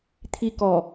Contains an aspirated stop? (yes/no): yes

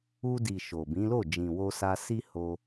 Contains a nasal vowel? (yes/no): yes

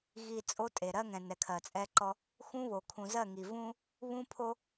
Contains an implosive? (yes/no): no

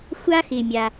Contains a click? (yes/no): no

